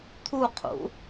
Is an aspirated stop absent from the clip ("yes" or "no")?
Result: no